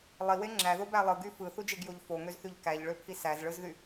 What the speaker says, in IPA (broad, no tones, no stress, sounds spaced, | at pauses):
lˠ i w e ŋ͡ǁ æ ð o b æ lˠ ɯ ɡ y f ɯ θ u d͡ʒ e ɡ j o ʎ f o ŋ ø z θ y ʎ k æ ʎ ɭ ø pʰ i s æ z ɭ ɯ z ð y